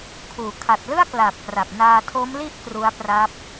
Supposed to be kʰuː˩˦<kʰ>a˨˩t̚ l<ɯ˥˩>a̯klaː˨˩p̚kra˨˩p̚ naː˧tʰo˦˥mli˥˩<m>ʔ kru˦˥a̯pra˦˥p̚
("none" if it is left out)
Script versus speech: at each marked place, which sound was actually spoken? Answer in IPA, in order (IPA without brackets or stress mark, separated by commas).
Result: kʰ, ɯ˥˩, none